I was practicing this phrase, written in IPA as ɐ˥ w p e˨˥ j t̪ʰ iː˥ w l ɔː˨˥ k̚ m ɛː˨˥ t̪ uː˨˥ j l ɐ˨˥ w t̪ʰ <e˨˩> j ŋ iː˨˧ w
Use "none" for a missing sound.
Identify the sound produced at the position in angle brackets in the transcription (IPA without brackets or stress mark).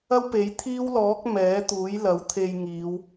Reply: e˧